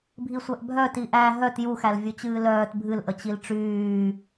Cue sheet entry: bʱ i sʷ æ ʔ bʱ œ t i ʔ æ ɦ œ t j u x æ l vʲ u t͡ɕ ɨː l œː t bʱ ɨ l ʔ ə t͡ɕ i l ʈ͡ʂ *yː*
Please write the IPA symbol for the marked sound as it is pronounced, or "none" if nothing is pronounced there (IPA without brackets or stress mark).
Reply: yː